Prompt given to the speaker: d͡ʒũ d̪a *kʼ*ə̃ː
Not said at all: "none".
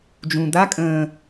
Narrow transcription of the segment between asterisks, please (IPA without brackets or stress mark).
kʼ